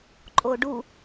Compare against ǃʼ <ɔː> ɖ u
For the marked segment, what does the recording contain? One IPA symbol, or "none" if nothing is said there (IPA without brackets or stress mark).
oː